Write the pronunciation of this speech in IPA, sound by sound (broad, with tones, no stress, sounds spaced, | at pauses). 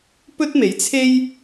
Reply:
p ɵ˥ t̚ m e˨˥ j t͡sʰ e˥ j